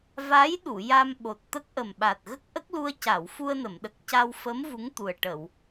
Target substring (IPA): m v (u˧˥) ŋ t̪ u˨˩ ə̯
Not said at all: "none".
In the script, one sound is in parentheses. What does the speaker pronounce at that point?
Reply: u˧˥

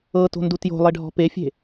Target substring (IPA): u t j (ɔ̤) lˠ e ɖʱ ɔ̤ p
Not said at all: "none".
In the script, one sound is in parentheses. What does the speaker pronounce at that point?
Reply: o̤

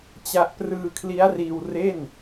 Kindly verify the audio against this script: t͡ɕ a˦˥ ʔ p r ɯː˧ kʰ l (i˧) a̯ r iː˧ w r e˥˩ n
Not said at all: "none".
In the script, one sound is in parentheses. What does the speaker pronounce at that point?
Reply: i˦˥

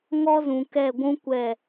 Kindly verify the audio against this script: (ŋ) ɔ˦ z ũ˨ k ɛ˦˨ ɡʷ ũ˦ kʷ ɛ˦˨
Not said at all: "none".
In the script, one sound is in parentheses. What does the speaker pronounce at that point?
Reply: ŋ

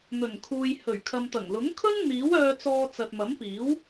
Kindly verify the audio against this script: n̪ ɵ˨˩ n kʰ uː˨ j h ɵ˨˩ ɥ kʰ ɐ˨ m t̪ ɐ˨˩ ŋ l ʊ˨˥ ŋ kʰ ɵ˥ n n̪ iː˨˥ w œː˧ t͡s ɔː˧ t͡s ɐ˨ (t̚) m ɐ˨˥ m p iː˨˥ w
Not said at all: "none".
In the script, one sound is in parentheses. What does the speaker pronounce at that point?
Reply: t̚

